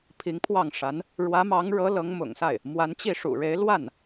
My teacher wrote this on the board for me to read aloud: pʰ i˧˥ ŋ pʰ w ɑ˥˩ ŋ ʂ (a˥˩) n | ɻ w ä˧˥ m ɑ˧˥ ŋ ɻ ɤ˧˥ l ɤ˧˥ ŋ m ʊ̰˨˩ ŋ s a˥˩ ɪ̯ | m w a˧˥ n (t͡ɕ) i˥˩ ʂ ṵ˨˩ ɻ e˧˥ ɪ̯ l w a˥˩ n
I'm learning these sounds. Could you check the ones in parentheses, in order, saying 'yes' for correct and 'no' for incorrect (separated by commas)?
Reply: no, yes